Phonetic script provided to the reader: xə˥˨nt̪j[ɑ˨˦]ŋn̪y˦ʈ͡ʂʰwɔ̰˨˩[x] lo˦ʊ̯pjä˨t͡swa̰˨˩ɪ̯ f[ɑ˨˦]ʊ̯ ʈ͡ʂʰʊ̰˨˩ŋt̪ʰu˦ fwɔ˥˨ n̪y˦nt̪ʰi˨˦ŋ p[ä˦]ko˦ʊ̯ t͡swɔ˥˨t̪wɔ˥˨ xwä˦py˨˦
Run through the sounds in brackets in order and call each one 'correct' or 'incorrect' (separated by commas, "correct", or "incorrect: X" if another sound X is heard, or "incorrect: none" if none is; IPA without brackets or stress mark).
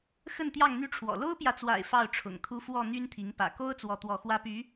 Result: incorrect: ɑ˥˨, incorrect: none, incorrect: ɑ˥˨, incorrect: ä̰˨˩